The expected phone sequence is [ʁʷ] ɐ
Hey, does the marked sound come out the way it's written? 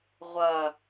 yes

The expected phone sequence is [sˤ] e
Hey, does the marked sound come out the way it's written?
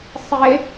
yes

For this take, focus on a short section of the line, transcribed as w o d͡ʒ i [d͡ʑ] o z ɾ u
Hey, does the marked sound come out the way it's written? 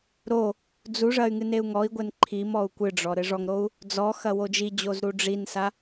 yes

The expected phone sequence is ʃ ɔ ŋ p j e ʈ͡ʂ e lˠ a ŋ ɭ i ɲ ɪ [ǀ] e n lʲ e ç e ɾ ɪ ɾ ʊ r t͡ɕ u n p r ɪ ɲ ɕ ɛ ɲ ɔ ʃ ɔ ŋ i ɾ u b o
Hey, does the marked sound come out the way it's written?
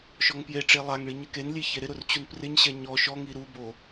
no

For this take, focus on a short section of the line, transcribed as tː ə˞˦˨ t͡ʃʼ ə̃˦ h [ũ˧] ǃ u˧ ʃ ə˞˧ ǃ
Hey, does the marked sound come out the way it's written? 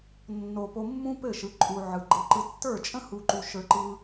no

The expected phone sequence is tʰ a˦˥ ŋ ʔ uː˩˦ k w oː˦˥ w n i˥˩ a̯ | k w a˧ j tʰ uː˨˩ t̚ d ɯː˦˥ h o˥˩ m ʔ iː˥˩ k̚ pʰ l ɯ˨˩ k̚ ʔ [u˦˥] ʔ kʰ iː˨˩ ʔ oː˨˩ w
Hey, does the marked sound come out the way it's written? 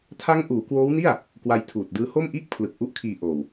yes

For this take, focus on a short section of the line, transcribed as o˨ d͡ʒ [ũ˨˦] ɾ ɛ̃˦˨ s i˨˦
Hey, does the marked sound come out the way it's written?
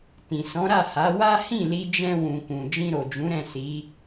yes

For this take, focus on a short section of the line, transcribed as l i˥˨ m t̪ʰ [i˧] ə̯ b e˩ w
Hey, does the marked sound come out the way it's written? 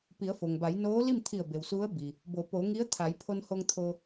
no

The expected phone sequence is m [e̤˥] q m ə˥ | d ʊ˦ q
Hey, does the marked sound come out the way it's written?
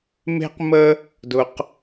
yes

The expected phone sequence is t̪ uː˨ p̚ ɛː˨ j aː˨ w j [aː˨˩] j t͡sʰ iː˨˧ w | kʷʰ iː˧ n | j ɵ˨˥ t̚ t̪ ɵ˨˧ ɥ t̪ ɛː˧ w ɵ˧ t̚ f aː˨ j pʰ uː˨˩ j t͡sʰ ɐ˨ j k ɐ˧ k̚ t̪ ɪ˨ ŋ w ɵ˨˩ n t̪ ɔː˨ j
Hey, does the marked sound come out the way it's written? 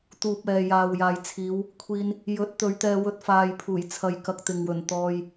no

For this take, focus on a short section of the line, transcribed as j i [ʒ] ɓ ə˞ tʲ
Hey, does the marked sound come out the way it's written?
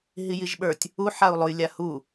yes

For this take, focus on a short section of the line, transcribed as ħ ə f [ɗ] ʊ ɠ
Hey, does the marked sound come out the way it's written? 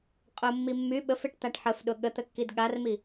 yes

